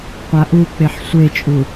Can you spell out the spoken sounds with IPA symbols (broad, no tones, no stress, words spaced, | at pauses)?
qʷaʔuk͡peħ sʷet͡ʃʼu